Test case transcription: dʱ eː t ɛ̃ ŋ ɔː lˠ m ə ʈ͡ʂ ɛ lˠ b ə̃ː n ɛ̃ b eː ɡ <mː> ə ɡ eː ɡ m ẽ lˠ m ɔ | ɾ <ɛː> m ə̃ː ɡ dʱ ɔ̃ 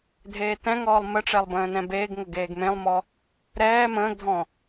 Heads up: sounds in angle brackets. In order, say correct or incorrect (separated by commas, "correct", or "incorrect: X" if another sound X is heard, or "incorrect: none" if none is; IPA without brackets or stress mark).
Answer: incorrect: ŋ, correct